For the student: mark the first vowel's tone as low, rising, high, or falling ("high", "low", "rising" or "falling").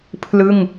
falling